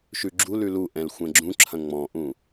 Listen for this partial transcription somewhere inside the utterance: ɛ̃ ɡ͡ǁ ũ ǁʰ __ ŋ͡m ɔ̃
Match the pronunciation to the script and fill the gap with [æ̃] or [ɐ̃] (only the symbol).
ɐ̃